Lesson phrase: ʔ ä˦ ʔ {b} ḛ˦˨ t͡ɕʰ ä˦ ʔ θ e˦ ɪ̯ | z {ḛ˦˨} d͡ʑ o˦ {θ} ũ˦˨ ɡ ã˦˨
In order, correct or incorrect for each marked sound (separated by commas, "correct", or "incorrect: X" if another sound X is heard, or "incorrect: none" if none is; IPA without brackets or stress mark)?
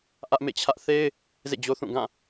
incorrect: m, correct, correct